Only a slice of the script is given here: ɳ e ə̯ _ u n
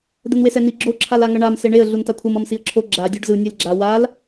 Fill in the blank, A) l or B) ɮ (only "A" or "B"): B